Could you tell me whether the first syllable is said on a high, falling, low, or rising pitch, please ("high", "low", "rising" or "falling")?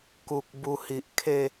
low